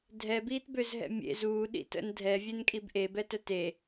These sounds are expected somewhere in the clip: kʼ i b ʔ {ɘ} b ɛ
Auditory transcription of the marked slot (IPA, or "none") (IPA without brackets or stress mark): e